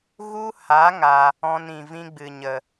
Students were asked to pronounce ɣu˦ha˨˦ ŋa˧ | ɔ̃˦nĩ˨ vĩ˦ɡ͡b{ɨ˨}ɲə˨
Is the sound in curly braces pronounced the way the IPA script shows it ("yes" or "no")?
yes